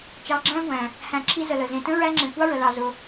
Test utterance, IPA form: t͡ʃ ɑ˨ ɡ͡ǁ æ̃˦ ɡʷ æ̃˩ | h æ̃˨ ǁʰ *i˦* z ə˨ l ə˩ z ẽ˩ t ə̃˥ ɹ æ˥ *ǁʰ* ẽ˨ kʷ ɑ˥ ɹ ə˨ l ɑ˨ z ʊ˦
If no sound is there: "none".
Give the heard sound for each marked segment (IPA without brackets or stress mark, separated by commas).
i˦, ŋ͡ǁ